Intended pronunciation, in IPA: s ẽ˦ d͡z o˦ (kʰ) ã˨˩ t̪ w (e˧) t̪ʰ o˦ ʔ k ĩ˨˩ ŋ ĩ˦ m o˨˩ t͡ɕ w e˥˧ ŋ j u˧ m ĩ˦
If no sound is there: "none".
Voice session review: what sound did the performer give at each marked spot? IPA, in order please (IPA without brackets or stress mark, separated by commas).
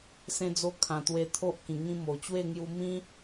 kʰ, e˧